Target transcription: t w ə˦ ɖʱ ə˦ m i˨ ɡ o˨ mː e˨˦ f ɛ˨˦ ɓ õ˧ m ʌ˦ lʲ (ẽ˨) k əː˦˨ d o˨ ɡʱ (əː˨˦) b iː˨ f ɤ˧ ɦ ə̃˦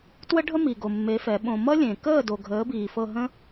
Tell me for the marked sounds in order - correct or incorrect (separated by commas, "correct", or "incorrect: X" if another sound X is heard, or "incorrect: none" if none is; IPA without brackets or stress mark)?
correct, correct